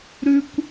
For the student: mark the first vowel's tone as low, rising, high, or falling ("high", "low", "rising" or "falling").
high